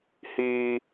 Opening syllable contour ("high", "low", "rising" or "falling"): high